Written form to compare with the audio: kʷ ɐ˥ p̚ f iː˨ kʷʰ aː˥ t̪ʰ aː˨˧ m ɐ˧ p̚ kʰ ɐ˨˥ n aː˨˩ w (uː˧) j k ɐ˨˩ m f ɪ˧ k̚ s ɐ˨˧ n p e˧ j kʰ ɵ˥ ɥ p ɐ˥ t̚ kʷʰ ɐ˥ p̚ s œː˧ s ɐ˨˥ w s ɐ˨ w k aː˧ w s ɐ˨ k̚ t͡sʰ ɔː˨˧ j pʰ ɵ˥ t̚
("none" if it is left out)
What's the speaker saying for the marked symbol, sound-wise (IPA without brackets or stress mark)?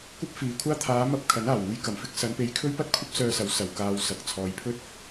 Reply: uː˧